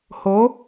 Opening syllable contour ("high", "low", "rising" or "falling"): rising